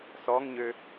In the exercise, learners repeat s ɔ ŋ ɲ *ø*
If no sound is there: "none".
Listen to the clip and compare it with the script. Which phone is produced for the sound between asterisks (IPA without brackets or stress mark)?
ø